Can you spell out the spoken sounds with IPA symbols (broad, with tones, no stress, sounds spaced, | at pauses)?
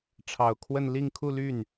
ʈ͡ʂʰ ɑ˨˩ ʊ̯ kʰ w ə˥˧ n l i˥˧ ŋ kʰ u˥˧ l y˥˩ n